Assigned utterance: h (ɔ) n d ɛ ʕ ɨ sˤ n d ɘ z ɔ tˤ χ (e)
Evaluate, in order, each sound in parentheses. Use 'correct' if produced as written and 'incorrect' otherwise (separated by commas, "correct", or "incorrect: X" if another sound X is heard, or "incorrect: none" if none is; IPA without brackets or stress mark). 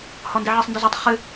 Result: correct, incorrect: ɨ